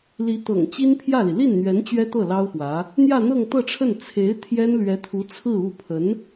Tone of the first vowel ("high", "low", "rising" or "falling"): rising